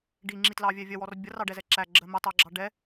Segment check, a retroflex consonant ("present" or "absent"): present